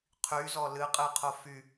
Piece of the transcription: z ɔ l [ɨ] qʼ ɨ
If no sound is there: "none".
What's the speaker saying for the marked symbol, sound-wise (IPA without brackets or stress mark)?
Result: ɨ